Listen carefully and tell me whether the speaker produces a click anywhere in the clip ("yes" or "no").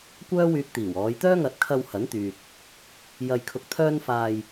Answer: no